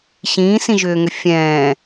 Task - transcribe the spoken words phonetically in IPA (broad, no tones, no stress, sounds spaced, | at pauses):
ɕ ĩː s ĩ ʒ ʏː ŋ ʏ fʲ ɛ̃ː